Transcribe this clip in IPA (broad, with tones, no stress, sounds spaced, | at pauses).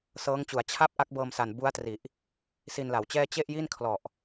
s ɤː˦˥ ŋ t͡ɕ u˩˦ a̯ t͡ɕʰ a˦˥ p̚ ʔ a˦˥ k̚ b ɤː˧ m s a˨˩ n b u˦˥ a̯ t r i˨˩ ʔ | s i˧ n l a˩˦ w t͡ɕ ɛː˥˩ t͡ɕ e˥˩ ʔ j i˥˩ n kʰ l ɔ˨˩ ʔ